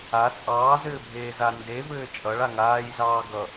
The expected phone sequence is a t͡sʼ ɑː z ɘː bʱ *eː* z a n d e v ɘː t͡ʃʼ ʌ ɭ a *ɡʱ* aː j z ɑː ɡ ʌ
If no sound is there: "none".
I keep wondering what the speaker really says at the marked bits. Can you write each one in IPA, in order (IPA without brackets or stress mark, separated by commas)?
eː, ŋ